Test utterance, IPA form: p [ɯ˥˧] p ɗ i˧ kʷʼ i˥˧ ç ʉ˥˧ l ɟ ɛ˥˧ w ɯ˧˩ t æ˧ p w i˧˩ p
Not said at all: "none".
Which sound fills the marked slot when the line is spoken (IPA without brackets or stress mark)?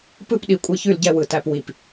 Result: ɯ˥˧